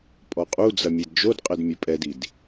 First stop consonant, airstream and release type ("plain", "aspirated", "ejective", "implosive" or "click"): ejective